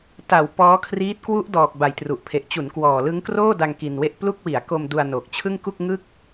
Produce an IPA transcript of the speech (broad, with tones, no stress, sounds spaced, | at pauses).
t a˩˦ w p ɔː˦˥ kʰ r iː˦˥ t̚ k w u˦˥ ʔ d ɔː˨˩ k̚ b a˨˩ j t r u˨˩ ʔ pʰ e˨˩ ʔ t͡ɕ u˩˦ n k w ɔː˨˩ l ɯ˦˥ ŋ k r oː˥˩ d a˧ ŋ k i˧ n w e˥˩ ʔ p l u˥˩ k̚ w i˩˦ a̯ k o˧ m d u˧ a̯ n oː˨˩ k̚ t͡ɕʰ ɯ˥˩ ŋ k u˥˩ k̚ ŋ ɯ˥˩ k̚